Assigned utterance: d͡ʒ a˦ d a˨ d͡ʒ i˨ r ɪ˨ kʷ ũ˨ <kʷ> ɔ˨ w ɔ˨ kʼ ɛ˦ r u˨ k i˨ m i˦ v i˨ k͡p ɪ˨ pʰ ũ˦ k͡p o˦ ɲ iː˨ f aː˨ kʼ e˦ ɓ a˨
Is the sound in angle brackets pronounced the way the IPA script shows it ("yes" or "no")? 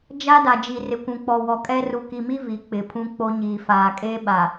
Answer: no